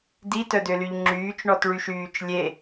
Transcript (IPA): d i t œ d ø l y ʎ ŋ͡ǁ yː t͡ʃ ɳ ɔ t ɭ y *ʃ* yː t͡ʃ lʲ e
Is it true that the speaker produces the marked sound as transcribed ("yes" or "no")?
yes